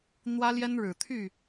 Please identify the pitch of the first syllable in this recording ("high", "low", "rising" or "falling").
high